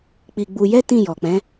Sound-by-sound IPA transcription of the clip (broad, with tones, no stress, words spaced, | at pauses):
k͡pi˧ɡ͡bu˧jɛ˦ tĩ˦˨jɔ˨k͡pɛ̃˨˦